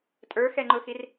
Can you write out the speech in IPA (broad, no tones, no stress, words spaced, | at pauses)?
tʼə˞xɛŋ͡ǃʊxir